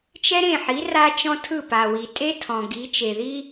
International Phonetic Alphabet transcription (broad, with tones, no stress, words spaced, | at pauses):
t͡ʃɛ˥ɾẽ˥˩ħi˩˥ ra˥t͡ʃɔ̃˥ tʰɯ˥˩pa˩wi˩ tʼe˥tʰɔ̃˩ ɡi˩˥t͡ʃe˩ði˥